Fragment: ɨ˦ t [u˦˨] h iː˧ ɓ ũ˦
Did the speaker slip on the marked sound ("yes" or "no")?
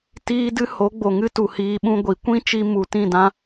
yes